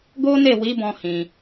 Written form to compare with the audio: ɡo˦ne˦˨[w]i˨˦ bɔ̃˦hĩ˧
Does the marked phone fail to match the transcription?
no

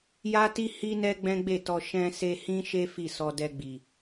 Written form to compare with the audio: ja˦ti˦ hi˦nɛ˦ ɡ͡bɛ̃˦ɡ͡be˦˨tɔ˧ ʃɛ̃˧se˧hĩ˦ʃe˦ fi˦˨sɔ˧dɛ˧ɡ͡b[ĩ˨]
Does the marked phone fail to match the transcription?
yes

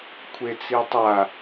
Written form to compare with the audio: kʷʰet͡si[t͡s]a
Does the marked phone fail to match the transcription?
yes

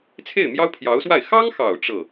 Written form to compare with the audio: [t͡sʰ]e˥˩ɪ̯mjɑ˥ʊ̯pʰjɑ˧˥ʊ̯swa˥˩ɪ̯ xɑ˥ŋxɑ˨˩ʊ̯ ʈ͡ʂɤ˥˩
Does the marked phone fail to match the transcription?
no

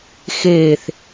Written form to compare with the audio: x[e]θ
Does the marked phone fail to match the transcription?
no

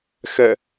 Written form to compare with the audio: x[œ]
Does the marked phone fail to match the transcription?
yes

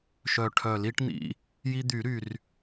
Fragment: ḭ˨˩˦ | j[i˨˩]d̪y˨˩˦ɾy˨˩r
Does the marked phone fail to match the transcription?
yes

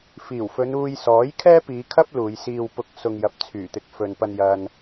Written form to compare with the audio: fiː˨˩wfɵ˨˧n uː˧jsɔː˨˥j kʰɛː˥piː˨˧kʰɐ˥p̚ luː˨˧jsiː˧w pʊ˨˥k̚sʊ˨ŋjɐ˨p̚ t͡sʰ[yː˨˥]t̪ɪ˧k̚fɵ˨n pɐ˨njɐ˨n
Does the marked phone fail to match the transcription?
yes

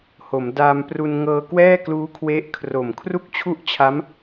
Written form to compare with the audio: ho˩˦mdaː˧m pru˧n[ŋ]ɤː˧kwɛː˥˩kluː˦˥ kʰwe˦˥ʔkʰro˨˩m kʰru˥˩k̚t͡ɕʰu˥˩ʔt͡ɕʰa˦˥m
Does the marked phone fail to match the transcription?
no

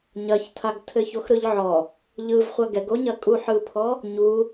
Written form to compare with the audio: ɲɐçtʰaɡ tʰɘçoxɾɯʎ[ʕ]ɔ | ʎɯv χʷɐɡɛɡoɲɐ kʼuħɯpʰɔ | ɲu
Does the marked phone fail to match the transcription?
no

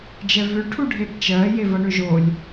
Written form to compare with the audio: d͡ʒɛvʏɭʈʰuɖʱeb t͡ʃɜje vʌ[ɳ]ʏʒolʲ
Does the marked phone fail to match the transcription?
no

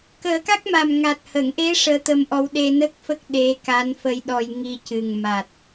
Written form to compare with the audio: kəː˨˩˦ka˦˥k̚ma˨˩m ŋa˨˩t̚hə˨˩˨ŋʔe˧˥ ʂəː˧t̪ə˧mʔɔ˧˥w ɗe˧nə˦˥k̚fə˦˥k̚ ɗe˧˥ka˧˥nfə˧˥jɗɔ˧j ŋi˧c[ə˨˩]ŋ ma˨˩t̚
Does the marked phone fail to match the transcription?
yes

